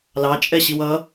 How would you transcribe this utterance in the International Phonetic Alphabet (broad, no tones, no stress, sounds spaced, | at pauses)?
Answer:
l ɑ t͡ʃʼ ɛ ɕ i w ʌ